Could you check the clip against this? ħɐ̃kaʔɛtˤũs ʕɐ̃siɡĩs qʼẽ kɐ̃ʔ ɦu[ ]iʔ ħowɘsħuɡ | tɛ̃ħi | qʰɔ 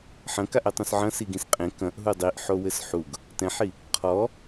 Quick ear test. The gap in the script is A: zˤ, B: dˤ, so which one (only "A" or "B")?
B